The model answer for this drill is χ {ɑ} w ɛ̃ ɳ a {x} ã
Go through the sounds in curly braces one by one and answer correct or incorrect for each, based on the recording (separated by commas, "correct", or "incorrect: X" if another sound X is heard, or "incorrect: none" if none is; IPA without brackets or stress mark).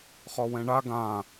incorrect: ɔ, incorrect: ɡ